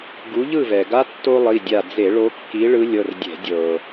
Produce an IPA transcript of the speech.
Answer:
ɡu˨˦ʎɯ˦˨ vɛ˩ɡa˥ tːo˥lˠi˩˧˩dʲa˦˨ d͡ze˧˩˧ɭo˨˦kːi˨˦ ɭɯ˨˦lʲɤ˩˧˩rdʲɛ̤˧˩˧ dʲɤ˩

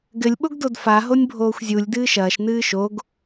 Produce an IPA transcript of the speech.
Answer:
ɡɘlʲɓoɡ dodfa ɦonʲbʱoːxʷzʲulʲ dɨːʃɐːʃ nɨːʃoɡ

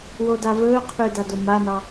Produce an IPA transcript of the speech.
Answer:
wodavɵːqʰy dadomanɑ

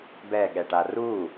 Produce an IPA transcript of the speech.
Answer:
bɛɠɛʈa ru

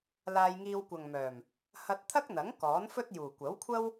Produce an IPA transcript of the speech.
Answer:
laː˧jŋiː˧wkʷɐ˨ŋmœː˨˩m | hɐ˧t̚t̪ʰɐ˥k̚n̪ɐ˨˥ŋ kɔː˨˥nfɵ˥t̚juː˨˩ kʷɐ˨˥wkʷʰɐ˥w

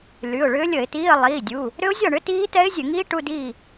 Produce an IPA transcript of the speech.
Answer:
ly˩˧˩ʊ̯ɭʏː˦˥ lʲə˧˩˧ɪ̯tiː˧˥˧ə̯ lˠiː˩˧˩dʲu˩˧˩ | ɾʏ˦˥ʊ̯zʲɒ˥˨ɳʏ˦˥ tiː˦˥ tɛ˦˥ɪ̯zʲɘ˧˩˧ŋiː˦˥ ʈu˧˥˧diː˥˨

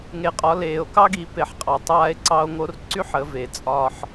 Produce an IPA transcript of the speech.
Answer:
ŋe˩˧qʼɒ˩˧ leː˩o̯kɑ˥ɡi˩˧ pe˩˧ħqʼɑ˩ tˤaː˧e̯ ǀɑ˧o̯ŋo˧˥r ǀy˥ħə˩˧ ve˩t͡sʼɒ˧ħ

